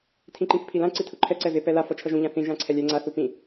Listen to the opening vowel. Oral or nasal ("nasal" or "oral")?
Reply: nasal